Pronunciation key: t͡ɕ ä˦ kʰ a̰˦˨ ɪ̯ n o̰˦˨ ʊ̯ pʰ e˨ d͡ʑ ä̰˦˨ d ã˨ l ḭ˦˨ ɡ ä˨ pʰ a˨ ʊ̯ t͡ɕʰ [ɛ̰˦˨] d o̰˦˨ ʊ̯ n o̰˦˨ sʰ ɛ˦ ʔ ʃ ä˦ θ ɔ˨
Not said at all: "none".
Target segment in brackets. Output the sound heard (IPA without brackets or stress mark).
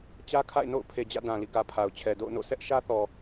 ɛ˨